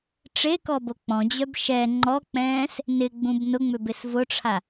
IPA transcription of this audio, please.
ʈ͡ʂekɔbo k͡pɔ̃d͡ʑœb ʃɛ ŋ͡ǃɔk͡pɛ̃ːs | nɪɡ͡bũb nʊŋ͡mʏbɪs vʊʈ͡ʂʰa

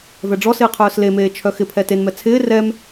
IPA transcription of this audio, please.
vɛɖ͡ʐɔsɪː qʰœːslemeː t͡ʃʰœxɪpʰɛ tenmɛ t͡sʰɪː rɛm

